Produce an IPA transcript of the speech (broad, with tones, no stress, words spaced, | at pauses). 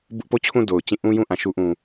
bʊ˦ʔpo˦˨t͡ɕʰũ˦˨ do˨ʊ̯t͡ɕĩ˦˨ ʔũ˦jũ˦ ʔã˨ʃu˦ʔũ˨